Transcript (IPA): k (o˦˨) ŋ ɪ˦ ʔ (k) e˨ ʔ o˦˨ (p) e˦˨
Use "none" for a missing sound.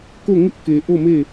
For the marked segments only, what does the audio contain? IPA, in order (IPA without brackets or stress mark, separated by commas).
o˦˨, k, m